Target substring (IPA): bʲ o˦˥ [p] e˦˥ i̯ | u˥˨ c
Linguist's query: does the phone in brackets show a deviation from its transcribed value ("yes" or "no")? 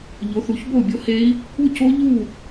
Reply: yes